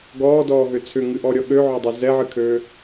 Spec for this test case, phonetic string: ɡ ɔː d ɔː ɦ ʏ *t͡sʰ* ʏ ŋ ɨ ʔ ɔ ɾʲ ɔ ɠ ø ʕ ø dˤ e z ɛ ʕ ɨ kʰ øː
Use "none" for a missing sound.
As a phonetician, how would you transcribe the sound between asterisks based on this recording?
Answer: t͡sʰ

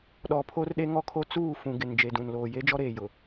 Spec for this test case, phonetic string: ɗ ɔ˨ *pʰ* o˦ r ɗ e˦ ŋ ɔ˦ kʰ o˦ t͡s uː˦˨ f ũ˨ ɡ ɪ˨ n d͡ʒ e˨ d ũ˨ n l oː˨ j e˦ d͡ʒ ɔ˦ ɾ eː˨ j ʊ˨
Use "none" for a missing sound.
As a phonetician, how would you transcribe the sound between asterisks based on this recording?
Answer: pʰ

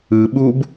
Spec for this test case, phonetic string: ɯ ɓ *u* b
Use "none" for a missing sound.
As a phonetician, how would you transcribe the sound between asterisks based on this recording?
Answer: u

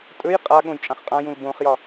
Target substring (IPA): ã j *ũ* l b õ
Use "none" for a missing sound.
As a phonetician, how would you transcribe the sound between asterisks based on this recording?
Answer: ũ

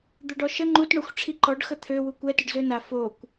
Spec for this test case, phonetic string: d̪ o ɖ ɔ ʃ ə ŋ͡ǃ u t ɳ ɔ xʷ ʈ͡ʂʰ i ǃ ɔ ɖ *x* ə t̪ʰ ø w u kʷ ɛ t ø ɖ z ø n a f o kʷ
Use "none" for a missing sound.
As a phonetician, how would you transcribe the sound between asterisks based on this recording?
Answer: x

